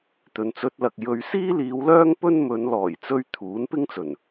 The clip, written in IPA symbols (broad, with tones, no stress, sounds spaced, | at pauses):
t̪ ɵ˨ n t͡s ɵ˧ t̚ l ɐ˨ k̚ j ɵ˨ ɥ s iː˥ l iː˨˧ w l œː˥ ŋ p ɵ˥ n m ɵ˨˧ n l ɔː˨˩ j t͡s ɵ˧ ɥ t̪ʰ uː˨˥ n p ɪ˥ ŋ t͡s ɵ˨˩ n